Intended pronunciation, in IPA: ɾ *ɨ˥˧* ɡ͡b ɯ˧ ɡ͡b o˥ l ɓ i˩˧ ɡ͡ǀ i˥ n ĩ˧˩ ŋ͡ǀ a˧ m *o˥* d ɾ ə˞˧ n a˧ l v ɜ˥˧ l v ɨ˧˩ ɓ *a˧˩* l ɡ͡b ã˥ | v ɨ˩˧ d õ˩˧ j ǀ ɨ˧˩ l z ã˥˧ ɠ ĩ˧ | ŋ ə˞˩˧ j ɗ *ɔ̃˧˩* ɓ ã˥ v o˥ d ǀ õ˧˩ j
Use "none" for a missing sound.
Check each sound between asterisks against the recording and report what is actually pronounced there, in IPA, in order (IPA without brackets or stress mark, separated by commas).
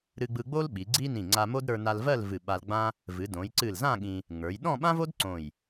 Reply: ɨ˧, o˥, a˧, ɔ̃˥˧